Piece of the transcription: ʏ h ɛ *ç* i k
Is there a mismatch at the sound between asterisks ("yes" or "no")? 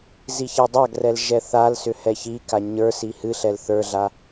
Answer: no